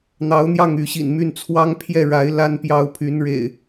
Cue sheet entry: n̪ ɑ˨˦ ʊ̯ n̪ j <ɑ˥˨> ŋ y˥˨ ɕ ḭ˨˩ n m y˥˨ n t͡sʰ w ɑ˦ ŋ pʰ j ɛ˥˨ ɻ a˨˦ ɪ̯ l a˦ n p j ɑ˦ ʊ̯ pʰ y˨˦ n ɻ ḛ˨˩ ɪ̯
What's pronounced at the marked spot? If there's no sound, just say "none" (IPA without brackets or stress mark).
ɑ˥˨